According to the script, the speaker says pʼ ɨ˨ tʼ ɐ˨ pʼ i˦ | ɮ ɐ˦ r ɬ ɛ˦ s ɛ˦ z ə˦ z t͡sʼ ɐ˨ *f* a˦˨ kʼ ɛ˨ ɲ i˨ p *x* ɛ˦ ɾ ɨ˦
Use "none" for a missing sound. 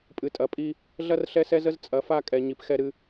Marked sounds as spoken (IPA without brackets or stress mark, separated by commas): f, x